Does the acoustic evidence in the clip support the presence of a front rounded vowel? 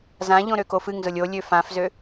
yes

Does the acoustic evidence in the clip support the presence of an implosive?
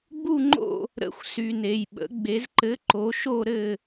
yes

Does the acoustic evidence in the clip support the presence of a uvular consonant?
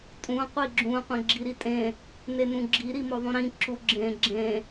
yes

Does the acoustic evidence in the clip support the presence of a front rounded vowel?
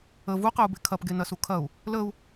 no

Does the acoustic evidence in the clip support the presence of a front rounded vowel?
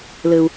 no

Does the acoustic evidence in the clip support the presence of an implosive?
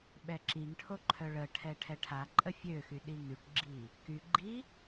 yes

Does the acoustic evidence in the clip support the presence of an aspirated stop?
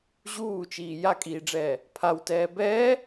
yes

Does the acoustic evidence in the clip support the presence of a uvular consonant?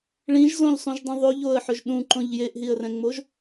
no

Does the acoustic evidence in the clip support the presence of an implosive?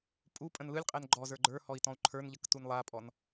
no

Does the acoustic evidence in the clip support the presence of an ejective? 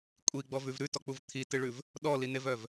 yes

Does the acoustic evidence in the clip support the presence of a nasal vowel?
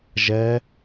no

